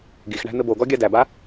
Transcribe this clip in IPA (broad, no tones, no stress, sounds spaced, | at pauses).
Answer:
ɡ i x ɳ æ̤ n̪ ɘ b o ɡ ɔ ɡʲ a d æ b a